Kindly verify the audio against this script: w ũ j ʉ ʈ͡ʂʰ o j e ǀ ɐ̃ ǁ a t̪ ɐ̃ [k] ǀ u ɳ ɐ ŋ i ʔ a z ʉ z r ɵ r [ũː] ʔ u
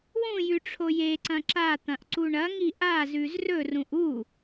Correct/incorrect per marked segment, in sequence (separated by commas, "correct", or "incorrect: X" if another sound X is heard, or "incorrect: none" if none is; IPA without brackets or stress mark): incorrect: ʔ, incorrect: ũ